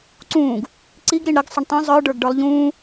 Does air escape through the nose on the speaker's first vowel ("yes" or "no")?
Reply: yes